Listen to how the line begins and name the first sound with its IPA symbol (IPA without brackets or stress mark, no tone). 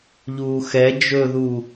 ʎ